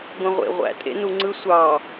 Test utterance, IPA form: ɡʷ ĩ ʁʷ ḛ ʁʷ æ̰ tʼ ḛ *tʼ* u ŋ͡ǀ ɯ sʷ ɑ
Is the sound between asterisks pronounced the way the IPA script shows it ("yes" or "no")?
no